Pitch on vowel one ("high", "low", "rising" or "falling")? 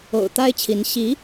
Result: low